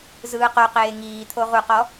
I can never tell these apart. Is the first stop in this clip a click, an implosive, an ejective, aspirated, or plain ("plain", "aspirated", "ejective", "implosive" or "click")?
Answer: plain